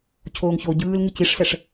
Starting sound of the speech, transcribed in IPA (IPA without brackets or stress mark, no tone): cʰ